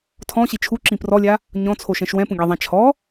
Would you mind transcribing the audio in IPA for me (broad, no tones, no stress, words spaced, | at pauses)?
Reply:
tʰɔ̃ɕi t͡ʃʰuǁĩ prɔlʲa | ɲɔ̃t͡sʰoʃɛ̃ʃ wɛ̃pũɡʲaðˤã t͡ʃʰɔ